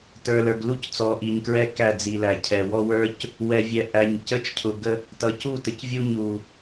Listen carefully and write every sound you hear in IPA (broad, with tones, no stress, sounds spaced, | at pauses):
t ə˞˨ l ə˞˨ ɡ l u˦ c t͡s ɔ˨ ʔ i˨ ɲ k ɹ ɛ˦ k æ˦˨ d͡z i˨ l æ˨ cʰ ɛ˨ w ɔ˦ w ə˞˦ c | w ɛ˨ vʲ ɛ˨ ʔ æ˨ ɲ c ə˦ t͡ʃ cʰ ʊ˨ ɡ ə˦ | t ʌ˨ c u˦˨ t ə˨ c vʲ u˦ ɲ u˨